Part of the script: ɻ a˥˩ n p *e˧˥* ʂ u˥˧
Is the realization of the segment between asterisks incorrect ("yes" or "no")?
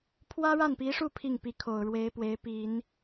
yes